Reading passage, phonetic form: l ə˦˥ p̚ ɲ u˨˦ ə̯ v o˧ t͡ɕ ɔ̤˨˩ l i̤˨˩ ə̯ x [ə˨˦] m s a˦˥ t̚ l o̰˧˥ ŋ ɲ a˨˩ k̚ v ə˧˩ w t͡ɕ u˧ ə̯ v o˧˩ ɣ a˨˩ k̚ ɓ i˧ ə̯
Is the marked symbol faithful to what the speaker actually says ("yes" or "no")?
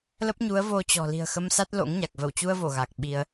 no